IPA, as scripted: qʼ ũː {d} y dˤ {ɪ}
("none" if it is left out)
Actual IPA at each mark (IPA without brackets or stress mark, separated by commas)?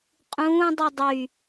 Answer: dˤ, y